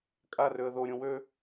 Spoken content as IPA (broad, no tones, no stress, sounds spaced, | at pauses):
kʼ a r ø ə̯ ð o ɾʲ õ w ø